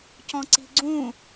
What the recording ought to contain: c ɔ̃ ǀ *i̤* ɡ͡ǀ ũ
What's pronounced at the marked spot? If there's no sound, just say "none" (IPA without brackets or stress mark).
i̤